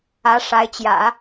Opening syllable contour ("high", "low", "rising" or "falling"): rising